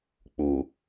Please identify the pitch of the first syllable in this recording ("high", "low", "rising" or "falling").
low